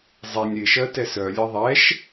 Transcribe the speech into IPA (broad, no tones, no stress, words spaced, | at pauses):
zˤɛnʲ ɾɪʃɜ tɛsœlʲe ðˤɛʃ